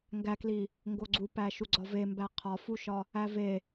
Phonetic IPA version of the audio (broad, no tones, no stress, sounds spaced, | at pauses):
ŋ ɡ æ k l i | ŋ ɡ o ɡ͡ǀ u p æ ʃ u ɡ͡ǀ ɒ v e m b æ qʰ ɒ f u ʃ ɒ | æ v e